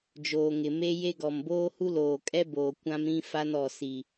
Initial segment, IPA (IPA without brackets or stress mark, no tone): d͡ʒ